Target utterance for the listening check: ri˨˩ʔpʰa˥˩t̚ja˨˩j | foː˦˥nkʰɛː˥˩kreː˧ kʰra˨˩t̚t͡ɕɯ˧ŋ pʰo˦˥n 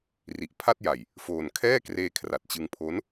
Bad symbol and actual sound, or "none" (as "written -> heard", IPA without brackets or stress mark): oː˦˥ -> oː˨˩